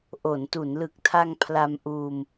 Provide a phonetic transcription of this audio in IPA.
ʔo˩˦ntu˩˦nlɯ˨˩k̚tʰa˧ŋ pʰla˧mʔuː˧m

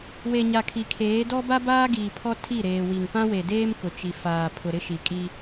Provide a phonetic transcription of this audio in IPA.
we˨ ɲa˨ kʰi˨kʰeː˨˦ dɔ˦ba˦baː˦ ɡiː˨pʰɔ˦ tʰi˦˨ɾeː˨wi˨ŋ pã˦we˨deː˦m kʊ˨t͡ʃi˨ faː˨ pʰʊ˨ɾɪ˦ʃi˨kʼi˦

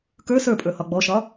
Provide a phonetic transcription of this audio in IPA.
kə˞ sə˞pʼə˞ hɒɡ͡bɔʃɒ

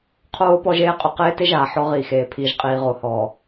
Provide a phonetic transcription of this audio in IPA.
qʰoː˦pɔ˦ʒeː˦ qʼø˨qeː˦te˦ʒaː˨ ħɔ˦ʁiː˨xeː˨ pʰiː˨ʒqʼiː˨ ʁo˨hɔ˨

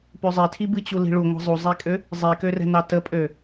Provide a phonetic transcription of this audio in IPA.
pøzˤetʰi bɨt͡ɕuli̤ɭu ŋʷɛ̤zˤuzˤikʼø | zˤikørɛ̤nɑ təpʼø

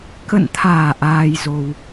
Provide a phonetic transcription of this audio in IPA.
kə̰˧˨nt̪ʰaː˨˩ ʔaː˧jzo˧w

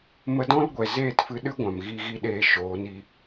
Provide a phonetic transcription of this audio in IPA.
mə˧dɔ̃˦lɡʷɛ˨ zeː˦˨tfɨ˧ɗɨ˦ɡʷã˨m ɣi˦ ɣi˦ɗeː˧ ʃoː˨˦ni˧

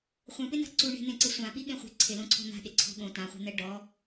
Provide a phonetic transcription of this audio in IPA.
χʷɛ̃pɪna̤ ǀuɳe̤n̪ẽǀɪ sʷãɓiɠẽχʷe̤ ǀʰɪlõǀʰɔ̤ n̪a̤ɗɪǀʰɔ̤ ɠõ tãχʷe̤n̪ɛ ɖɔ

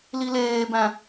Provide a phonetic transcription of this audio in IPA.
lileːbæ̃

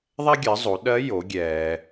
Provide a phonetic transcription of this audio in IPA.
ðˤɛ˥ ɡʲəː˩˧zˤo˩˧ ɗɜ˧˥ jo˩˧ɡʲɛː˩

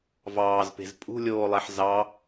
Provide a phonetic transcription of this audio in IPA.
vɑːzpe̤z pʼṳlʲoːlˠeħ zɑ

